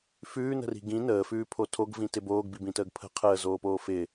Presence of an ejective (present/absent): absent